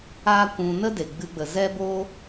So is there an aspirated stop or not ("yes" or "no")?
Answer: no